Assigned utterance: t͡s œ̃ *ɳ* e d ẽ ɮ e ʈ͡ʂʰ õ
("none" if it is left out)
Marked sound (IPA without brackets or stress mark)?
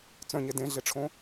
ɲ